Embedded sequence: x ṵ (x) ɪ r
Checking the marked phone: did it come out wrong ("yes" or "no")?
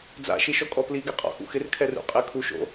no